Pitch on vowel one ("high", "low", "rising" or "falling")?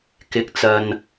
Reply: low